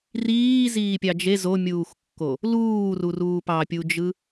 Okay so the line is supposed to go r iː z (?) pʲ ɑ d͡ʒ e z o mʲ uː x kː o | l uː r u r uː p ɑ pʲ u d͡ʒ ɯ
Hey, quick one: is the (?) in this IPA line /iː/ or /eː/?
iː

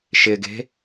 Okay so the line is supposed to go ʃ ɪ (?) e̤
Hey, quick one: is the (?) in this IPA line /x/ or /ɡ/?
ɡ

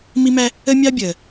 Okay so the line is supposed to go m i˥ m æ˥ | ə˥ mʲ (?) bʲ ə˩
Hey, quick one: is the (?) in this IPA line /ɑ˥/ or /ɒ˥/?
ɑ˥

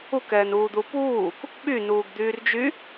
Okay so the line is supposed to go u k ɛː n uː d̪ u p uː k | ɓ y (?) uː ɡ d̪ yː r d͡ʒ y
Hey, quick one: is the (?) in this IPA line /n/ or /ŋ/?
n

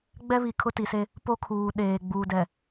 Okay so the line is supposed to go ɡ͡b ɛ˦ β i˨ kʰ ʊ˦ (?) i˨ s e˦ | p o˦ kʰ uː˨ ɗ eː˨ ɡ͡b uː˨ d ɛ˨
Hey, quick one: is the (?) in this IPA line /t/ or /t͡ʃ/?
t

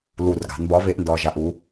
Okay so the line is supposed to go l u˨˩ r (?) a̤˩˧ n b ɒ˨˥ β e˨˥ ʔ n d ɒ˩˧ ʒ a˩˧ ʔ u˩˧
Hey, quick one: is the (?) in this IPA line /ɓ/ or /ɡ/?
ɡ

